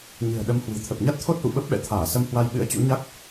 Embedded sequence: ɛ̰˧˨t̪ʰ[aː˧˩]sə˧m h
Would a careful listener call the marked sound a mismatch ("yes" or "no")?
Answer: no